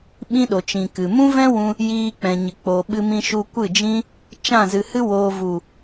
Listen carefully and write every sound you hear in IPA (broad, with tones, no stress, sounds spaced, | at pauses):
ɓ ĩ˦ ɗ o˨ t͡ʃ ĩ˨ k ɨ˨ m ũ˦ v ɛ̃˦ w ũ˧ | j iː˧ k͡p ɛ̃˨ ɲ ɨ˨ k͡p o˨ ɓ ɨ˧ m ĩ˧ ʃ u˧ kʷ ɨ˦˨ d͡ʒ ĩ˦ | t͡ʃ ã˦˨ z ɨ˨ h ɨ˦ w oː˨ v u˨